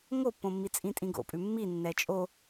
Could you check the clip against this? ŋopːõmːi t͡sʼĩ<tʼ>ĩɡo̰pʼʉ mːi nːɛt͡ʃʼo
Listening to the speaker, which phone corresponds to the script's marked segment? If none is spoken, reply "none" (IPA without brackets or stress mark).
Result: tʼ